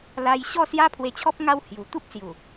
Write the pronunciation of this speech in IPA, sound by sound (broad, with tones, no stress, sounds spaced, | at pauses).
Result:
l a˧ j ɕ ɔ˥˧ s j a˦ pʰ w e˧ t͡ɕʰ ɔ˦ p̚ ŋ a˧ w h j u˨˩ t̪ u˦ p̚ s j u˨˩